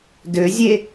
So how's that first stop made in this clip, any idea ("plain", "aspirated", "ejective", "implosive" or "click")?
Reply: plain